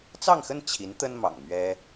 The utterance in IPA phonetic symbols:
t͡s ɑ˥˧ ŋ x ə˥˩ n t͡ɕʰ i˧˥ n t̪ ə˥ n m ɑ̰˨˩ ŋ m ɥ ɛ˥

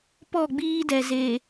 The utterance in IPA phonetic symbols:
p ɔ˦˨ ɡ͡b iː˦ d ɛ˨ z e˨

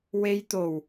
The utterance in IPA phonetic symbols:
w e˧ j t̪ o˨˩ w

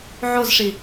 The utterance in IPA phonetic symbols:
ʕ o z ʂ i

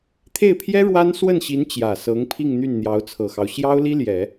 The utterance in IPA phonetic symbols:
t̪ʰ e˥˩ ɪ̯ pʰ j ɛ˥ ɻ w a˥ n s w ə˥˩ n ɕ i˧˥ n t͡ɕ j ä˨˩ s ɤ˧˥ ŋ pʰ i˥˧ ŋ n̪ y˥˩ n n̪ j ɑ˧˥ ʊ̯ t͡sʰ ɤ˨˩ x ɑ˦ ʊ̯ ɕ j ɑ˥ ʊ̯ l i˥ l j ɛ˨˩˦

